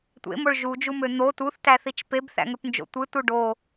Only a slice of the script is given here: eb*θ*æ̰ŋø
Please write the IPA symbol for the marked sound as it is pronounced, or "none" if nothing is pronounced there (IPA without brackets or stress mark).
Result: θ